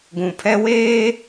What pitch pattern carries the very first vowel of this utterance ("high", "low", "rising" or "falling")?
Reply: low